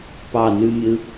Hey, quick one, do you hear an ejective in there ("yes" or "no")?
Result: no